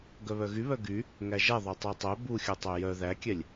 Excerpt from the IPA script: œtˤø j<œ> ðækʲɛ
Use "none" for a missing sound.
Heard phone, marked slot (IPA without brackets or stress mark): œ